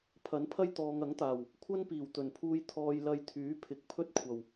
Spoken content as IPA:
pʰ ɐ˨˥ n pʰ ɐ˥ j t̪ ɔː˨ ŋ ɐ˨˥ ŋ t̪ aː˨˩ w | kʷʰ ɐ˥ n p iː˨˩ w t̪ ɵ˨˩ n pʰ uː˧ j t̪ʰ ɔː˧ j l ɐ˧ j t̪ʰ yː˨˥ pʰ ɪ˨˥ k̚ pʰ ɵ˥ t̚ kʷʰ ɐ˨˩ w

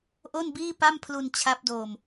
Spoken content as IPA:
ʔ o˥˩ n b iː˥˩ p a˥˩ m pʰ l u˧ n t͡ɕʰ a˦˥ p̚ d oː˧ m

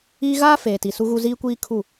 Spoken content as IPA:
iː˦ ɣ aː˦ f eː˨ t i˨ s u˦ ɣ u˦ z iː˦ kʷ iː˦ kʰ u˦˨

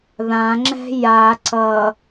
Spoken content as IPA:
ð ã ŋ͡ǁ ɛ̤ j a ǀ ʌ

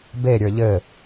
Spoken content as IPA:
b e ɾʲ ə˞ ʎ ɘ

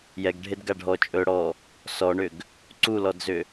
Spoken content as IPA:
j ɛ ɡ ɖʱ e d ɡ a ɖʱ ɔ t͡ʃʼ ɵ ɽ ɔ | s ɔ ɳ ʏ ɡ | ǀ u l ɔ d z ʏ

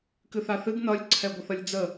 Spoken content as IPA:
k ɨ θ a θ ɨ ɡ n ʌ lʲ ǀʰ ɛ ɡʷ ə θ ʌ lʲ d͡z ə

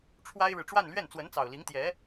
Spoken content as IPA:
ʈ͡ʂʰ w a˥ ɪ̯ ɻ ɻ̩˨ ʈ͡ʂ w a˥˧ n l ɥ ɛ˥˩ n t͡s w ə˧˥ n t͡s ɑ˨˩ ʊ̯ l i˧˥ ŋ t̪ j ɛ˧˥

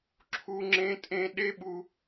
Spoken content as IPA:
ǁʰ u˦ ŋ͡ǁ ẽ˦ tʼ ẽ˦ ɗ e˦ ɓ u˦

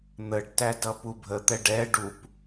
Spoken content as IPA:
n̪ ə ɖ t æ d ʌ p u bʱ ə t̪ ɛ ɖ ɛ ɖ u p

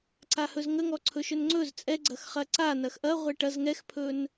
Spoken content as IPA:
ǀ a h ɵ z ŋ ə ŋ ɔ ǀʰ ɵ ʃ ɵ n ŋ͡ǀ ɵ z t͡sʼ ɛ ɡ͡ǀ ɐ x χ ɐ ǀ a n ɐ x ʔ ɐ ʁʷ ɛ ʈ ɐ z ŋ ɛ x pʰ ɵ n

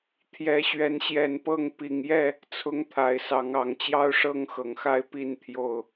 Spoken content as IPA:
t̪ʰ j ɛ˨˦ ɕ ɥ ɛ˨˦ n ɕ j ɛ˨˦ n p ɤ˥˨ ŋ p i˨˩ ŋ j ɛ˥˨ | t͡sʰ ʊ˦ ŋ t̪ʰ a˨˦ ɪ̯ s ɑ˨˦ ŋ ɑ˨˦ ŋ t͡ɕ j ɑ˦ ʊ̯ ʂ ɤ˦ ŋ x ɤ˨˩ ŋ x a˥˨ ɪ̯ p i˥˨ n t̪ʰ j o˥˨ ʊ̯

